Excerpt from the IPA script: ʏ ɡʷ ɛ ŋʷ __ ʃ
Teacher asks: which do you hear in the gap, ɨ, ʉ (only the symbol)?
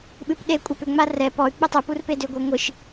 ɨ